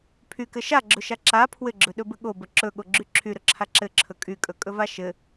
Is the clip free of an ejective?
no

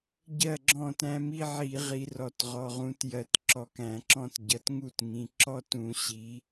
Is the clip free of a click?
no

